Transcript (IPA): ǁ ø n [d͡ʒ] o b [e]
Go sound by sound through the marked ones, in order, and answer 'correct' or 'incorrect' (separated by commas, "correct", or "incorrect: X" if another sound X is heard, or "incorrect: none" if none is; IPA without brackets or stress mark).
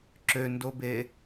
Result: incorrect: d, correct